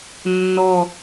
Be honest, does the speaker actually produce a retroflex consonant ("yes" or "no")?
no